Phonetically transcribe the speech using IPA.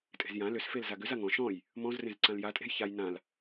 tʼ e̤ z j ã l ʏ s f e l z a ɡ ʏ z a ŋ ɔ̃ ʃ ɔ̃ j | m ɔ̃ z r ẽ z ǀ ã l j a tʼ e̤ j ç a j n ã l

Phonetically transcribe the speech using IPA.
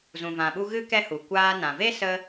z ũ˨ v ã˨ ɓ u˧ ɣ ɨ˦ k ɛ˦ h u˨ kʷ aː˧ n ã˨ v e˦ s ə˧

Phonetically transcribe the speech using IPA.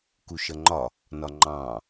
k u ʃ ʌ ŋ͡ǃ ɒ | n ɒ ŋ͡ǃ ɑ̃

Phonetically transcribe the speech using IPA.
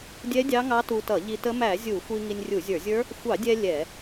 dʲ ɛ˦˥ dʲ ɑ˦˥ ŋ ɑ˦˥ t u˧ t ʌ˧˩˧ ʎ i˧ t ə˦˥ m æ˧˩˧ zʲ u˧˩˧ xʷ i˧ ŋ i˧ nʲ rʲ u˧˩˧ zʲ ə˞˧˩˧ zʲ ə˞˦˥ | xʷ ɑ˧˩˧ dʲ ɛ˧ lʲ ɛ˧˩˧

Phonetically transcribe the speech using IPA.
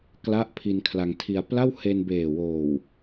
k l a˦˥ ʔ pʰ i˧ n kʰ l a˧ ŋ tʰ i˧ a̯ p l a˥˩ w h e˧ n b eː˨˩ w oː˨˩ w

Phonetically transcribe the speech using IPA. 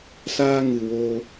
s aː˦ ŋ ɨ˨ w o˧

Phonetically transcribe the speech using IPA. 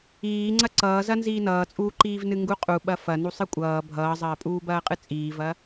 iː ŋ͡ǀ ɐ ǀ ʌː z ɐ n z iː n ʌː t͡sʼ uː ǃ iː v n ɨ ŋ ɡ u qʼ u ɓ ɐ f ɐ n u sˤ ɨ kʷʼ ʌː bʱ ʌː zˤ ɐː pʼ uː b ɐː qʼ ɨ t͡sʼ iː v ɐ

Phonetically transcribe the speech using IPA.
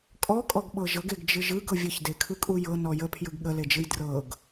kʼ ɔ kʼ ɔ ɡ ɓ ɤ ʒ ɤ ɡ e ɡ d͡ʒ ɯ ʒ ɯ ɡ ɤ vʲ ə ç d e kʰ ɯ kʼ u j ɤ n ɔ j ə pʰ j ɯ ɡ ɠ ə l e d͡ʒ ɯ j d r ɤ ɡ

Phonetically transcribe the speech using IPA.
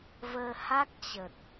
v əː˧ h a˦˥ k̚ t͡ɕ ə˨˩ t̚

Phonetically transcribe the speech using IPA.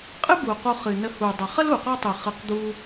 qʼ ɨ˥ b u˩ q u˨ χ ɨ˩ n ə˨ h u˩ dˤ ə˩ χ ə˥ l u˩ q ɔ˦ tˤ ɨ˩ χ ɨ˩ q d̪ u˨

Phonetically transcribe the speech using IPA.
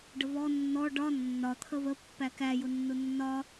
ɖ ə β ɔ nː ɔ ɖ ɒ nː ɒ t̪ʰ ə β ə pː æ k æ j ʊ nː ʊ nː ɒ

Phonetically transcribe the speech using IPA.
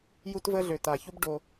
j u˦ t v ə˦ ɮ ø˨ t a˨ ç u˦ b ɖ o˦

